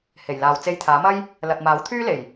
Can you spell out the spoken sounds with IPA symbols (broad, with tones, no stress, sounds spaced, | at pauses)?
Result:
h e˨˩ j l aː˨ w t͡s e˧ j t̪ʰ aː˨˥ m ɐ˥ j | l ɐ˨ t̚ m aː˨˥ w t̪ʰ yː˥ l e˨˩ j